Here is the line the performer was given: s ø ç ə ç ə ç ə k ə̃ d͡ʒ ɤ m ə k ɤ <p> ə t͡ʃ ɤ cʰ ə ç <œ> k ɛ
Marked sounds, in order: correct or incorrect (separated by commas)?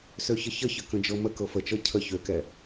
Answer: incorrect, incorrect